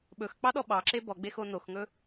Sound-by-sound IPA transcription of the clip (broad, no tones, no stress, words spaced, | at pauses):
ɓɵxk͡pɑɗɔ ɓɑǁe bɔɡ͡bexo noxŋɵ